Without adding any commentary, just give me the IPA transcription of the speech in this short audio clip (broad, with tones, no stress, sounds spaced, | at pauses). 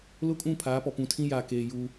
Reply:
l ʊ˦ kʼ ũ˦˨ pʰ aː˨˦ p ɔ˨ p ũ˨ tʰ ĩ˦ j aː˨ k eː˨ j u˦